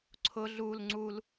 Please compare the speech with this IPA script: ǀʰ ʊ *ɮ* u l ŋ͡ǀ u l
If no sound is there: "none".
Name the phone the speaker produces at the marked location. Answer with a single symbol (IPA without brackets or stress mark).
ɮ